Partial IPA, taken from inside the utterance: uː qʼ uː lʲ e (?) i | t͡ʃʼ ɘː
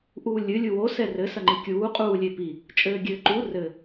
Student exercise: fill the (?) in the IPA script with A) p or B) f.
A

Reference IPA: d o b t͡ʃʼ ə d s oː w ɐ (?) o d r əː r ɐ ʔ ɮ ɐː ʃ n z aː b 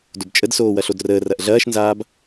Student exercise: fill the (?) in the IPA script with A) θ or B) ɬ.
B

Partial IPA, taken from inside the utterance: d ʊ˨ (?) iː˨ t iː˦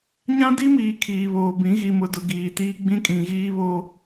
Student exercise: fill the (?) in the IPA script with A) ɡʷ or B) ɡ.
B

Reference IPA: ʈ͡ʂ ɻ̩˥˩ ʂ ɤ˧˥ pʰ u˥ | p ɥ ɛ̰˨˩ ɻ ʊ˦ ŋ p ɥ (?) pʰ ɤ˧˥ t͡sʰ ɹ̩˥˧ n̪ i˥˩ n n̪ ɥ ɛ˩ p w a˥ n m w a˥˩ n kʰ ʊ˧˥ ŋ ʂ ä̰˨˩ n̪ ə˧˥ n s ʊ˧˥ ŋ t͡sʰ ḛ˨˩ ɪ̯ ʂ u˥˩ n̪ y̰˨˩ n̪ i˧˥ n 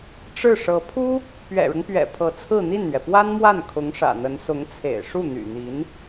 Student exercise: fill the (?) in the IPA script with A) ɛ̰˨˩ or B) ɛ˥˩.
A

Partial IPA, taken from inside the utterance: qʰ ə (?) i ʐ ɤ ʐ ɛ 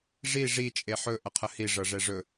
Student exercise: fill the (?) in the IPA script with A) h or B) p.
A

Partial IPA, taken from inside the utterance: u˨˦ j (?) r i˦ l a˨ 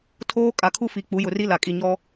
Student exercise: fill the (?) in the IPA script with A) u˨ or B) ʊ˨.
B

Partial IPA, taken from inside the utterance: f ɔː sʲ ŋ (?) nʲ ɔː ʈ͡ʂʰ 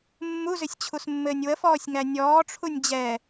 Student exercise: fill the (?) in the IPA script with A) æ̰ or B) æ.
B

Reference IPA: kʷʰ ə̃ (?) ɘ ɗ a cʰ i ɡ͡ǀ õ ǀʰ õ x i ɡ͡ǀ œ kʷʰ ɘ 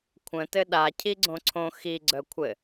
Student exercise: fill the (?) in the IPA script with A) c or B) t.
B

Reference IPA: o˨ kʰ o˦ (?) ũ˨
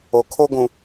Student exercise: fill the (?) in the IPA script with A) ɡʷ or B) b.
A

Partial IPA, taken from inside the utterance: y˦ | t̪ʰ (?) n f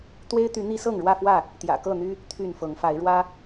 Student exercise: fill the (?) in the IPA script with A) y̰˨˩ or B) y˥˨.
B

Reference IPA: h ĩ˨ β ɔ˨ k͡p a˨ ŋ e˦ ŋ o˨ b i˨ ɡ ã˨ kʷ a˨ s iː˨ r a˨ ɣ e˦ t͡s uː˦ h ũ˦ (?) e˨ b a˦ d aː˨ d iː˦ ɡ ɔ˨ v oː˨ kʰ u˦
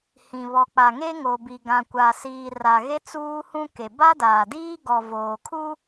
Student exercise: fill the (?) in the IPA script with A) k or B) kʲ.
A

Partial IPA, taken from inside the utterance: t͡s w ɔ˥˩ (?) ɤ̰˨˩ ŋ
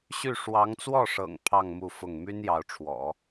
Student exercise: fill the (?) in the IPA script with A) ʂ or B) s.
A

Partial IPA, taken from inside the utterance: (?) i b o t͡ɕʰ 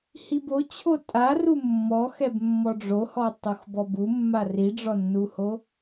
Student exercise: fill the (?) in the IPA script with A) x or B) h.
B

